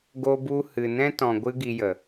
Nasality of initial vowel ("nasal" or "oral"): oral